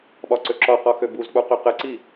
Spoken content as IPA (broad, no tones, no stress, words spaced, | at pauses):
ɓɒǀøǁɒqɒ xøbuzk͡pu qøqɘǀi